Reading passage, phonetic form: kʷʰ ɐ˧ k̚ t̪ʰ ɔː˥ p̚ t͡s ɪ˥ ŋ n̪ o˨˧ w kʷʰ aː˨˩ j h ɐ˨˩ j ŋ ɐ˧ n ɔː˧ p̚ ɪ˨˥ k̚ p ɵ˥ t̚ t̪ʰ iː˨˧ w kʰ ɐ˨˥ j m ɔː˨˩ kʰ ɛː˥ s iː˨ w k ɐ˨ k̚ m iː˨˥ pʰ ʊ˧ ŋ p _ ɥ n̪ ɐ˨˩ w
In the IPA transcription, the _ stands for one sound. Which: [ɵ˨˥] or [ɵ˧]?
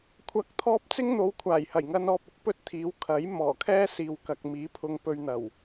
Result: ɵ˧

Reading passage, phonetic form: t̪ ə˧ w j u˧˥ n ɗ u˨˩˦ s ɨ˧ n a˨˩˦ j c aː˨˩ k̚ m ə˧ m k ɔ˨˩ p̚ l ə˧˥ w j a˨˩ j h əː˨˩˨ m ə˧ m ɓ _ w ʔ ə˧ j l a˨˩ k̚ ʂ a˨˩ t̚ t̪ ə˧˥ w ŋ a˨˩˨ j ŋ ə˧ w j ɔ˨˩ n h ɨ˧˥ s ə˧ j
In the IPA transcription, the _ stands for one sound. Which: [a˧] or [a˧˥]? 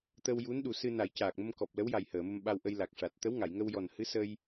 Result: a˧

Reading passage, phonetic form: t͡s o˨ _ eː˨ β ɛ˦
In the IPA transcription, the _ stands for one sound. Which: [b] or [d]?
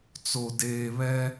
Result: d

